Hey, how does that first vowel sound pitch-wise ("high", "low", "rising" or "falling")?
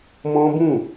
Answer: high